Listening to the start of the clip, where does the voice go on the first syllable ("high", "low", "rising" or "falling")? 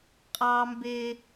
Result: high